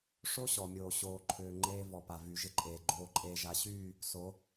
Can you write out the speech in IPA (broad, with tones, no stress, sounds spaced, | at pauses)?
ʂ o˦ ɕ ɔ˨ mʲ oː˨ ɕ oː˨ ǃʰ ʏː˨ ŋ͡ǃ eː˦ v ɔ˨ p a˨ v y˨ ʒ ɪ˦ ǃʼ eː˨ ɡ͡ǃ oː˨ ǃʼ eː˨ ʒ a˨ ɕ yː˦˨ | s o˨˦